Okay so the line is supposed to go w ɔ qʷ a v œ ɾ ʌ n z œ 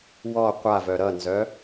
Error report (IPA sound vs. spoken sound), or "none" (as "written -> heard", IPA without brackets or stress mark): none